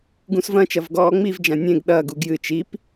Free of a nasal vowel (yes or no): no